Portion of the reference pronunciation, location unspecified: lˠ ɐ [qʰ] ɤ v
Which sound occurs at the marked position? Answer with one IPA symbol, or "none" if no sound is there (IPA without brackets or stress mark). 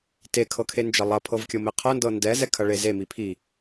pʰ